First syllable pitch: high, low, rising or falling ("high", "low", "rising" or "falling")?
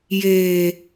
low